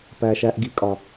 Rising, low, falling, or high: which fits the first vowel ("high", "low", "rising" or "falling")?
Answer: low